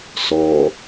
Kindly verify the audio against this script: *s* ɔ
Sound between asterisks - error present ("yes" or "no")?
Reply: no